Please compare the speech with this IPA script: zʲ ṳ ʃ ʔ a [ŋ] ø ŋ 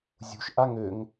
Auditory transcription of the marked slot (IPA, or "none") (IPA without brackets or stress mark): ŋ